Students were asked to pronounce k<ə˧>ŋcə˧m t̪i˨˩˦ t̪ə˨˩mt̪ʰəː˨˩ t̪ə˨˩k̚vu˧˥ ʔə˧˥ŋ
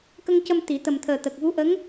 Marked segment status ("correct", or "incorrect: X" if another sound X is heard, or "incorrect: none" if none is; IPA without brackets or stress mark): correct